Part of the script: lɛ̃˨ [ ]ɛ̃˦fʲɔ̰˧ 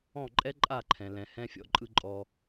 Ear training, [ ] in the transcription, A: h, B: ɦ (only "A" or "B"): A